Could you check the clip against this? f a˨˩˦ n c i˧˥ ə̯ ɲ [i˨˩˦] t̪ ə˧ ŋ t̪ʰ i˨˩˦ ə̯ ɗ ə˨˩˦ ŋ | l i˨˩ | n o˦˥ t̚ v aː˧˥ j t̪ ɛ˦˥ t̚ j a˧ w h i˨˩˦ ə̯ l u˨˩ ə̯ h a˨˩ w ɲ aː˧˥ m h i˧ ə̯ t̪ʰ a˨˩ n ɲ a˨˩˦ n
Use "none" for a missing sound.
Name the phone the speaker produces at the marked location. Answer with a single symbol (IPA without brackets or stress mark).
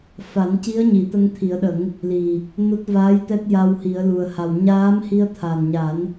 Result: i˨˩˦